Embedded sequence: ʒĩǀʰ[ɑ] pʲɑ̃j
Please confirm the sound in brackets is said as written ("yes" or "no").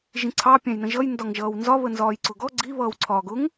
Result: yes